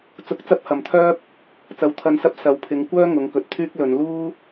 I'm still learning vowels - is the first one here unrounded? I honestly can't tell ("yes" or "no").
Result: no